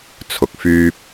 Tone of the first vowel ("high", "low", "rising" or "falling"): low